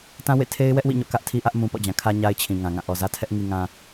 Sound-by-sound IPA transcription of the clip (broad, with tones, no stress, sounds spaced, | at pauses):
t ã˦ w ḛ˦˨ tʰ e˦ ɪ̯ w ɛ˦ ʔ w ḭ˦˨ ɲ o̰˦˨ k ä˦ ʔ tʰ i˦ ʔ ä˦ ʔ m ũ˨ p ɔ̰˦˨ d͡ʑ ã˨ kʰ ä˦ ɲ a˦ ɪ̯ t͡ɕʰ ĩ˨ ŋ ã˨ ŋ ã˦˨ ʔ ɔ˨ z ä˦ tʰ ɛ˦ ʔ ŋ i˨ ŋ ã˨